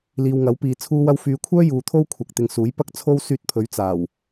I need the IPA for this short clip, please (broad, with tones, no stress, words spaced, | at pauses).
liː˨wŋɐ˨˥w piː˨ t͡sʰuː˧wɐ˧wfyː˨˧kʷʰœː˥ juː˨t̪ʰo˥w kʷʰɐ˨k̚t̪ɪ˨ŋsuː˨˥j pɐ˥k̚t͡sʰo˥wsyː˧t̚pʰɵ˨˥ɥ t͡saː˨˩w